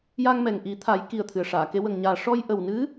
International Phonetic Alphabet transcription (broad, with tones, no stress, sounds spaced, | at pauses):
j a˧ ŋ m ɛ˨˩ ŋ ʔ i˨˩˦ t̪ʰ a˨˩˦ j k i˨˩ ə̯ t̪ʰ ɨ˨˩ ə̯ ʂ aː˨˩˨ k e˧˥ w ə˨˩ ŋ ɲ aː˨˩ ʂ ɔ˧ j ʔ ə˨˩ w n ɨ˧˥